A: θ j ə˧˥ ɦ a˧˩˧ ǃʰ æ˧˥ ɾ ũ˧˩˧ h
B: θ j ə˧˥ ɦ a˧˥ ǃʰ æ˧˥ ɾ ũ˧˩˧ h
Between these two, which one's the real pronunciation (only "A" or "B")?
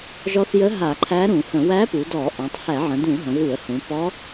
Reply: A